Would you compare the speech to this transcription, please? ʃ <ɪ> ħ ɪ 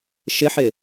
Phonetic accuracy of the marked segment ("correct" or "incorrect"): correct